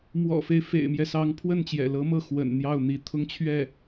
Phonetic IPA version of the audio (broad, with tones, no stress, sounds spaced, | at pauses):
m w ɔ̰˨˩ f e˦ ɪ̯ f ḛ˨˩ ɪ̯ m j ɛ˦ s ɑ˧˥ ŋ pʰ w ə˥˩ n t͡ɕ j ɛ̰˨˩ l ɤ˧˥ m ɤ˥˩ x w ə̰˨˩ n n̪ j ɑ˥˩ ʊ̯ n̪ i˧˥ t̪ʰ ʊ˥˧ ŋ t͡ɕʰ ɥ ɛ˥˩